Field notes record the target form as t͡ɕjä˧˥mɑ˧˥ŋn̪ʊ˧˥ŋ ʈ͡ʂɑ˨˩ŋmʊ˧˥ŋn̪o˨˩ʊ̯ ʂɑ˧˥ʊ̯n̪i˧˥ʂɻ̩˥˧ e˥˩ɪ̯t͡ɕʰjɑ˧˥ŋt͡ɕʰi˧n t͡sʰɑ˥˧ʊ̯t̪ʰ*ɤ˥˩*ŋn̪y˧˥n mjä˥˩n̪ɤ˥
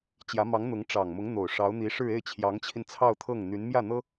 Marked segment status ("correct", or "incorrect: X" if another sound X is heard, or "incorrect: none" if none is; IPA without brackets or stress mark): correct